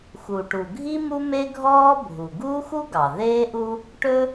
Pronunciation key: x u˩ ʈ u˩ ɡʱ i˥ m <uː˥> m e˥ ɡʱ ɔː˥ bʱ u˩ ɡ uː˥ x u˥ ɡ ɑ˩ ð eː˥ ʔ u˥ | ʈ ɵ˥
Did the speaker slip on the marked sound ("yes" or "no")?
yes